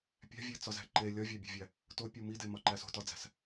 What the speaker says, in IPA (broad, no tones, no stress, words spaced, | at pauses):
pʲæ̤vʲet͡sɒzæ̤ ǃe lʲɒvʲæbʲe̤vʲæ | topʲu midemɒǃæs o̤tɒd͡zæ̤s